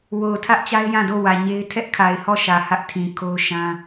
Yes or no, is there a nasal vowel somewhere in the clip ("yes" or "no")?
yes